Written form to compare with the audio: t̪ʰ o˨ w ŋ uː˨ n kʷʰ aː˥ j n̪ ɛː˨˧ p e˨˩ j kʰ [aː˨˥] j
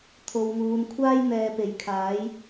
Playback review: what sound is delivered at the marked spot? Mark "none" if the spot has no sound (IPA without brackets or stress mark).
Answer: aː˨˥